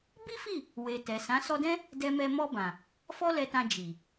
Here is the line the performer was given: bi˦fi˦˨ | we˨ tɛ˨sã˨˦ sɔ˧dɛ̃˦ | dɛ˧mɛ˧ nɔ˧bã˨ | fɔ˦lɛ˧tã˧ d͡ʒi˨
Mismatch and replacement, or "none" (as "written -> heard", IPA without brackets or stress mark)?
n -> m